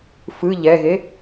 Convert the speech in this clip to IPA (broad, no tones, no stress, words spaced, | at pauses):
fɯ ʎɛɣe